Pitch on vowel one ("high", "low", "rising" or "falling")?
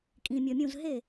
low